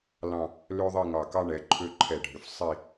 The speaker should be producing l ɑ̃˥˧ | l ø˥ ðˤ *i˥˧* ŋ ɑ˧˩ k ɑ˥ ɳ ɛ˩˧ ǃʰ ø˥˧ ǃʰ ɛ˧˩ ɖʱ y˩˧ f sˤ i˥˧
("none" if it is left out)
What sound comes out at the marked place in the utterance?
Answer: i˥˧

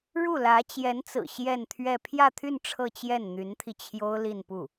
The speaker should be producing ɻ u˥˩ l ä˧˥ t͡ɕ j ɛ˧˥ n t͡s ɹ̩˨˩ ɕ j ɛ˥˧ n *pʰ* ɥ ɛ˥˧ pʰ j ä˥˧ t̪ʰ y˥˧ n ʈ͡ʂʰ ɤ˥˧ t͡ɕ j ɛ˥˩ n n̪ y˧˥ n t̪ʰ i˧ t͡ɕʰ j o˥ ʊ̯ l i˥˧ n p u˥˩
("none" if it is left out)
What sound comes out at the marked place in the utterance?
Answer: t̪ʰ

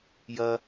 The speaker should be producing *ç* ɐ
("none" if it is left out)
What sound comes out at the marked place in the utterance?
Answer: j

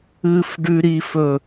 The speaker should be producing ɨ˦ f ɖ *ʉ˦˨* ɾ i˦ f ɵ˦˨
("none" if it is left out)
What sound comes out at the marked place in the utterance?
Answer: ʉ˦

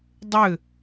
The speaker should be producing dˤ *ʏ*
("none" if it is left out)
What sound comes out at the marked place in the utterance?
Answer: ʏ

